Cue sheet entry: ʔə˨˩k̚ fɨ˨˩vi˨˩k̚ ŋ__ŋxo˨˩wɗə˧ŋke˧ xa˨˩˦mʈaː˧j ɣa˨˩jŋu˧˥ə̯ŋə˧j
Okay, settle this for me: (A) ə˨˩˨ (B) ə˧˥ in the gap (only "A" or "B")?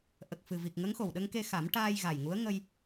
B